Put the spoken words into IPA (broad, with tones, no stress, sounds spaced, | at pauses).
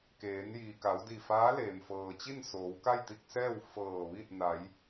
k eː˩˧ n j iː˩ k a˩˧ w d i˧˩ f aː˧˥ l eː˩ m f ɤː˩ t͡ɕ i˥˨ n s oː˩˧ w k a˥˨ j t̪ i˥˨ k̚ s ɛː˥˨ w f ɤː˧˩ ʋ i˥˨ t̚ n a˩˧ j